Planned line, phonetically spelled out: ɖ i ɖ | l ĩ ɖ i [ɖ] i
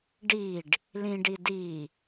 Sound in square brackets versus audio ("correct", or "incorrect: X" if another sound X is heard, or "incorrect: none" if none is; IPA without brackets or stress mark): incorrect: d